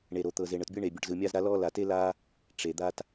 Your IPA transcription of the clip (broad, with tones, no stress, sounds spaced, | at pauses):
ɳ e˨ ɾ o˨ t̪ ɤ˨ z e˨ ɳ ɤ˨ t bʲ ɯ˦ ɳ eː˨ bʲ ɔ˨ ʈ z ɯː˨ mʲ aː˦ z ɾ a˦ l ɔː˦ l a˨ t e˦ l aː˦ | ʈ͡ʂ e˨ d̪ a˦ t